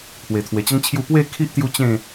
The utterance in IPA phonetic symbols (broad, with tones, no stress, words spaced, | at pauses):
pʰwe˨˩t̪ʰwe˨˩t͡ɕə˦ŋt͡ɕʰju˥˧ pwe˥˧kʰi˦ʔ t̪ju˦t͡ɕẽ˥˧